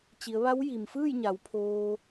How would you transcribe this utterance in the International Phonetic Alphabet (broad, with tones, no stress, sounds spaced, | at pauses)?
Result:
t͡ɕ i˩˧ ə̯ ʋ a˧˥ w j i˩ m f ɯː˥˨ j ɲ a˩˧ w pʰ oː˧